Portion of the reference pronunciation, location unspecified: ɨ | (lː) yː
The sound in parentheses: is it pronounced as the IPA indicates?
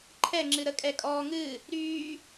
no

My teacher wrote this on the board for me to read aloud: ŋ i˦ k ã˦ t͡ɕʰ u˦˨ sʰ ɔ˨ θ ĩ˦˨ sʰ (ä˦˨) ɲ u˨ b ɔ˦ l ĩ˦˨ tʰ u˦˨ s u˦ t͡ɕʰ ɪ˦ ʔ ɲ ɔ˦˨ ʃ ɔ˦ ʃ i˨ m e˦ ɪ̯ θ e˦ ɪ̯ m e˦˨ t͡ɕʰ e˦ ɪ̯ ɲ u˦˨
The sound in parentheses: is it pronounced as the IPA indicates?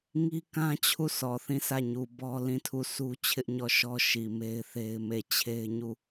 yes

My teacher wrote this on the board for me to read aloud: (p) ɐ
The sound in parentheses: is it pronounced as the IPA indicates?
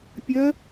no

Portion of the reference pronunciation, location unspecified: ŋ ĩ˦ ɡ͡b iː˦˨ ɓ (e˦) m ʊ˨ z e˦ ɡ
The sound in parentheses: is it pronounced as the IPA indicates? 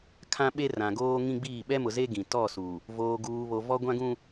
no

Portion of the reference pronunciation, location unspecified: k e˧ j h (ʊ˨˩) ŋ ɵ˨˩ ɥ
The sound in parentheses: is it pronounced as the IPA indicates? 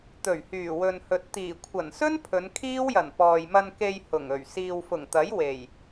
yes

